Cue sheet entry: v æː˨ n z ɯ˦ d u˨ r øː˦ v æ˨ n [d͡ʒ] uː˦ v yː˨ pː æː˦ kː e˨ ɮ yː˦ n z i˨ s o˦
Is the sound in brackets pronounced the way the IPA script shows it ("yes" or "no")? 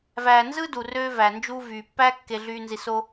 yes